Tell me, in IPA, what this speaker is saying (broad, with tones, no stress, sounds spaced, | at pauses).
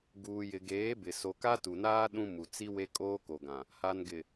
ɡ uː˨ j ɪ˨ ɡ eː˨˦ b ɪ˨ s o˨ k a˦ t u˨ n aː˦ ɗ ũ˦ m u˨ t͡s i˦ w e˦ kʼ oː˦ k o˨ ɡ ã˨ | h a˨ n ɡ ɪ˨